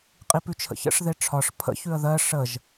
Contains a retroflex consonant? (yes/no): yes